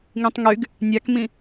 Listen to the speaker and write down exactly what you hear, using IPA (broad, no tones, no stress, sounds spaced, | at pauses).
ŋ ĩ tˤ ŋ y ɡ | nʲ a k m ĩ